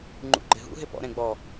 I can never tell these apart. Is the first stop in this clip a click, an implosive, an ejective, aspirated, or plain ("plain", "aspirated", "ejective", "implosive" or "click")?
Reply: click